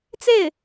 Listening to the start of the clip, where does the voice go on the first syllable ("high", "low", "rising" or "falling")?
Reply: falling